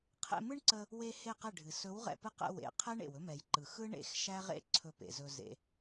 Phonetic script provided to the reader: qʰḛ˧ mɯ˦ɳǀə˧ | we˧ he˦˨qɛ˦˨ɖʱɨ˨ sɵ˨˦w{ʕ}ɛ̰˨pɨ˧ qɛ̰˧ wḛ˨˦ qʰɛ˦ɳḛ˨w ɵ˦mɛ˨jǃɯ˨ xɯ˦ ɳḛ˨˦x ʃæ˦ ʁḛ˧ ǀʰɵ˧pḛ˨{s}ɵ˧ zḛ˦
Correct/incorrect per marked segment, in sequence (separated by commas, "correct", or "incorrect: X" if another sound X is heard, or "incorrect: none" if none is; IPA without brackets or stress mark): incorrect: ʁ, incorrect: z